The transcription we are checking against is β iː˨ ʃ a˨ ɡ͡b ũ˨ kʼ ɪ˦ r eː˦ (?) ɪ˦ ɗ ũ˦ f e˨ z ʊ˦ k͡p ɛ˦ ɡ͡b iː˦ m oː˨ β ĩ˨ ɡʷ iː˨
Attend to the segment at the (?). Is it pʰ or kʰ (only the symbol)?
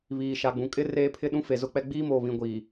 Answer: pʰ